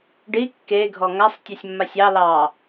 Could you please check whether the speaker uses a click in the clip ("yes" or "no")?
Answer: no